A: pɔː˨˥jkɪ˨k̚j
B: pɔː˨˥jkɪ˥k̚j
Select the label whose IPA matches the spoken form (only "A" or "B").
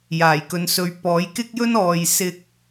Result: B